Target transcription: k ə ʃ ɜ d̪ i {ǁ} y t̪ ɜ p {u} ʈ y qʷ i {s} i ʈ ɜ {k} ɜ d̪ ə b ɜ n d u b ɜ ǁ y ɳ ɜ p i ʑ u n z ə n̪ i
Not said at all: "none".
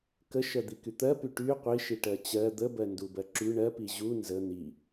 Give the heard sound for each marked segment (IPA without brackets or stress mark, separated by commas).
k, y, ʃ, t͡ɕ